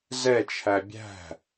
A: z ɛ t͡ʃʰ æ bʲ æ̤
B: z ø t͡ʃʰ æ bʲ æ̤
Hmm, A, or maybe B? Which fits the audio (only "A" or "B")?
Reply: A